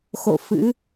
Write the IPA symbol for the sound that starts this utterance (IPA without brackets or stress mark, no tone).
x